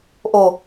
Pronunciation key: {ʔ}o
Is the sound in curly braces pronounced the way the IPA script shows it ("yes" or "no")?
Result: yes